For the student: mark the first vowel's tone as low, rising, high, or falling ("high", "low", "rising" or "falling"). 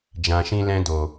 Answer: low